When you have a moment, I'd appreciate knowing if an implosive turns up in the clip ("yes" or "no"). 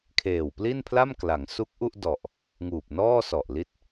no